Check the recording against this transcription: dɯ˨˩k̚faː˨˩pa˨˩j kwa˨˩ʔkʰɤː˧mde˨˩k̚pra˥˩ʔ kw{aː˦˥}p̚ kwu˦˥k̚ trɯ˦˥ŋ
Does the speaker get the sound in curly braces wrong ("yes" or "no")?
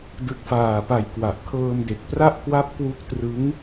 yes